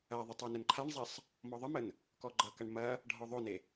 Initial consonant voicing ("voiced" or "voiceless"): voiced